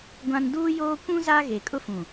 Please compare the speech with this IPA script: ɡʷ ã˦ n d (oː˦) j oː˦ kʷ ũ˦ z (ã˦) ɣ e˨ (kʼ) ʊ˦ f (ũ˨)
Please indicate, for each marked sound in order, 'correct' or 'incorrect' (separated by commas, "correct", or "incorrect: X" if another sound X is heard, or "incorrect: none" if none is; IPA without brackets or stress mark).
incorrect: uː˦, incorrect: a˦, correct, correct